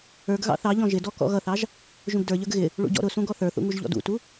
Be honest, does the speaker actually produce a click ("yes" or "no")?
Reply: no